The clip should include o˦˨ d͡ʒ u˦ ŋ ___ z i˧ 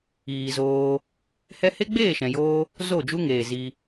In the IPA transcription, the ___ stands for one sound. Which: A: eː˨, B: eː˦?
A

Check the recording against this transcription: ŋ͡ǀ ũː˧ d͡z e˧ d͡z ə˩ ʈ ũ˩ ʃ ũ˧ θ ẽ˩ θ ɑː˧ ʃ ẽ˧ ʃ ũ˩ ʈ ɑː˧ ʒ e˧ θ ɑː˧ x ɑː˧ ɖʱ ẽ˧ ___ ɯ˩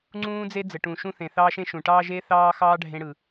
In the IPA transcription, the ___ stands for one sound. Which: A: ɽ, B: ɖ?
A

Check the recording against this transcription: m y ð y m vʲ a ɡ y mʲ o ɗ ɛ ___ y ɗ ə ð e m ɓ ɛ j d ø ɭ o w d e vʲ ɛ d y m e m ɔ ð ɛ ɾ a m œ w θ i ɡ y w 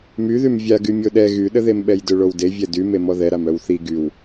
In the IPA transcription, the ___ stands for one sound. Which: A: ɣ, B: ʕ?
A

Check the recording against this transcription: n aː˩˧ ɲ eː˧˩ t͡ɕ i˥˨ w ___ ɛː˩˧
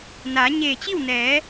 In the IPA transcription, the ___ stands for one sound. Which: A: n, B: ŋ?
A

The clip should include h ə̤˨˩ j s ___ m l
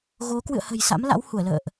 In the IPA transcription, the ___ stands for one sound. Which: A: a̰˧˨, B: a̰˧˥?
B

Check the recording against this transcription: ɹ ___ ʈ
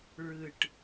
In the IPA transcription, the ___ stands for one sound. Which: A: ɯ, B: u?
A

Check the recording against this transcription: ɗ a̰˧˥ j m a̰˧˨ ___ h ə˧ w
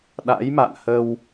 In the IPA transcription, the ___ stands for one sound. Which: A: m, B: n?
B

